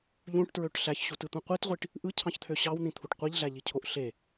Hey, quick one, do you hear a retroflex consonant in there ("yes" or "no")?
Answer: yes